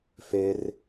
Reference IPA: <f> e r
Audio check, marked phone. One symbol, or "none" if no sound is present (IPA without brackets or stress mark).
f